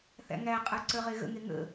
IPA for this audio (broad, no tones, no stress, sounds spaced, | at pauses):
θ æ̰ ŋ æ qʼ ə˞ ǀ ə˞ ʁ e ɣ ə̰ ŋ e ŋ ə̰